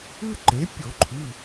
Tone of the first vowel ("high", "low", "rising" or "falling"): high